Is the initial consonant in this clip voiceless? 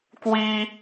yes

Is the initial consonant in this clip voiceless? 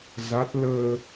no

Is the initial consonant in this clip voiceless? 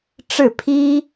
yes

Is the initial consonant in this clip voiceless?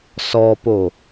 yes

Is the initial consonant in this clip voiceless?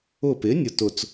yes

